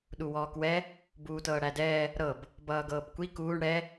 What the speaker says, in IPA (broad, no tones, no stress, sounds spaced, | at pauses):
ɗ u w ɔː k w ɛ | b uː t ɤː ɽ æ d ɛː | ɾ ɤ b | b ʌː ɡ ɤː b kʷ i k uː ɳ ɽ ɛ